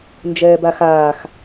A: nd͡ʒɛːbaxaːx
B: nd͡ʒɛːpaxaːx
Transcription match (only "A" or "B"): A